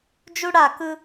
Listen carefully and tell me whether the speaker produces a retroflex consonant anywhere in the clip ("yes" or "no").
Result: yes